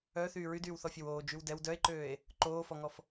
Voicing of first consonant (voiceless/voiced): voiceless